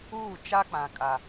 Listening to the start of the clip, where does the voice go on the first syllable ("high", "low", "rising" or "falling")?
falling